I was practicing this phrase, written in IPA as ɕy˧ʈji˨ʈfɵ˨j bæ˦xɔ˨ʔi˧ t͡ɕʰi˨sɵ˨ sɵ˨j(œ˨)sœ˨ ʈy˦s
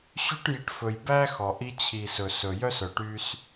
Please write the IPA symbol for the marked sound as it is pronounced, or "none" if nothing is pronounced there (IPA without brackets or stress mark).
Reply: œ˦